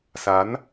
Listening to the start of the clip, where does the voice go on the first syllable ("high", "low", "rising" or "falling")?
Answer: rising